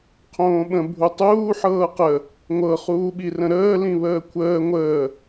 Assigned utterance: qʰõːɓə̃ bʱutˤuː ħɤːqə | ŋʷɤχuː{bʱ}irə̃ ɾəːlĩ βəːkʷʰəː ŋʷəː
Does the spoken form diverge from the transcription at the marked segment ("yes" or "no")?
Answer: yes